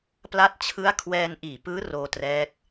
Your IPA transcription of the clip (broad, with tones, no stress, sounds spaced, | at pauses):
p l a˦˥ t̚ t͡ɕʰ ɯ˦˥ a̯ kʰ w ɛː˧ n ʔ iː˨˩ p ɯː˦˥ r oː˧ t r ɛː˦˥ k̚